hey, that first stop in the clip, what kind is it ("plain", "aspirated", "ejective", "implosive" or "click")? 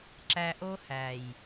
click